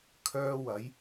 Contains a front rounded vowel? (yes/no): yes